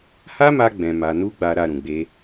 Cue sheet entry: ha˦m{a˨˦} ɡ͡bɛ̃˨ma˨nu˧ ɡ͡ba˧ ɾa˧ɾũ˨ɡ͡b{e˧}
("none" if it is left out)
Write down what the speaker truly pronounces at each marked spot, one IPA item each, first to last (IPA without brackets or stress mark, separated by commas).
a˧, e˧